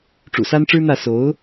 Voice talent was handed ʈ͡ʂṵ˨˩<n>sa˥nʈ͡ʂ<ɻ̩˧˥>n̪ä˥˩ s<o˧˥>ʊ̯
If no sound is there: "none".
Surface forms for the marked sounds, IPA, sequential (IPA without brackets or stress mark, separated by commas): none, ɻ̩˥, o˧˥